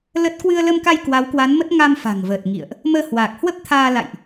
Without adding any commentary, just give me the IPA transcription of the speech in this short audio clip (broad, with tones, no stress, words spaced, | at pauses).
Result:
lə˦˥t̚ kwɨ˧ə̯lə˧mka˧j kwa˨˦wkwa˨˦nmə˦˥t̚ ŋa˧mfa̤˨˩ŋvəː˨˩t̚ ŋḭ˧˨ə̯ʔ | məː˧ hwaː˨˩k̚ hwə˦˥p̚t̪ʰaː˧ la̰˧˨jʔ